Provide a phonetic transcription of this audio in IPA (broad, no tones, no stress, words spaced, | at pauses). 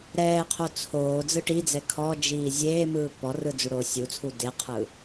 ɾɛːqʰo t͡sʰoː d͡zɯʈid͡zɛ kʰɔd͡ʒiː zʲeːmɯː pɔrɯ d͡zuɽoːsʲut͡sʰu deqʰɯ